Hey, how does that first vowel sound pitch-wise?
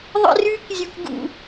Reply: high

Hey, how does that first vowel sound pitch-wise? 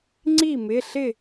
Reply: falling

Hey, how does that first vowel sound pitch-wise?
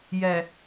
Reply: low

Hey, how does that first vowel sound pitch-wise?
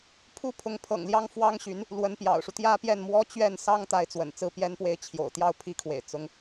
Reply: high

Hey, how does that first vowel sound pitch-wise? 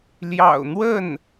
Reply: low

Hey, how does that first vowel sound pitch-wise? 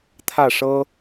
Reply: falling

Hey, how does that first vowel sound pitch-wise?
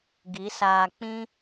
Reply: rising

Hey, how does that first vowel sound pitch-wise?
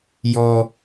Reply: high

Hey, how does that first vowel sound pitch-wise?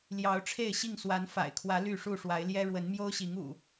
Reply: rising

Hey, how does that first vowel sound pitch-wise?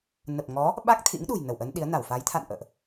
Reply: low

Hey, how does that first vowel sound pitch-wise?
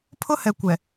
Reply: high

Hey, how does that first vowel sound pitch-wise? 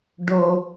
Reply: low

